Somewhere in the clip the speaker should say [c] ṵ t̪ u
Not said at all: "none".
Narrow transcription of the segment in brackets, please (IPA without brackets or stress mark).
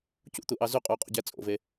c